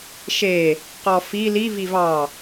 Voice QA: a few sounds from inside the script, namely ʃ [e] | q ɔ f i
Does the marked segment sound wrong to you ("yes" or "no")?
no